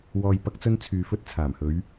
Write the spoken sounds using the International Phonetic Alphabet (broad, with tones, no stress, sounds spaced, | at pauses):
w ɔː˨ j p ɐ˨˥ k̚ t͡s ɵ˧ n t͡sʰ yː˨ f ɵ˧ t̚ t͡sʰ aː˨˩ m h ɵ˨˧ ɥ